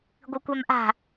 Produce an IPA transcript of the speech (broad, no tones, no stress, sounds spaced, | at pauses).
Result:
ɡʷ ɨ kʷ a m ʔ a̤